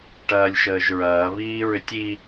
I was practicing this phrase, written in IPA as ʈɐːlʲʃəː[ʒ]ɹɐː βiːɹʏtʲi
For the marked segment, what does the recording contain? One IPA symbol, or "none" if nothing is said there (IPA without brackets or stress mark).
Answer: ʒ